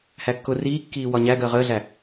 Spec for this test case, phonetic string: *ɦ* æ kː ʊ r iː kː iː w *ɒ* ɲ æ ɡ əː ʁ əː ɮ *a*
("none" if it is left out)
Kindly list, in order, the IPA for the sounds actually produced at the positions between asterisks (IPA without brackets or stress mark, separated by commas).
h, ɒ, æ